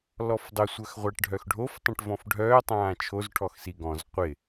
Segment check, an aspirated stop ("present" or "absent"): present